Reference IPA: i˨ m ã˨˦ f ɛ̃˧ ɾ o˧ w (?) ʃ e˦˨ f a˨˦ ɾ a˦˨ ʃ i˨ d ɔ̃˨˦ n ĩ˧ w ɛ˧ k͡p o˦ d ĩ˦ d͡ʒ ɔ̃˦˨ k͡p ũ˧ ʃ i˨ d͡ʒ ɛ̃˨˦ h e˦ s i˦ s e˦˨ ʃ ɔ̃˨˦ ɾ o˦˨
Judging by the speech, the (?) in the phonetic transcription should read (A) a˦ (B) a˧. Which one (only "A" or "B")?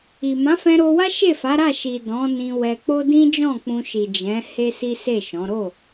A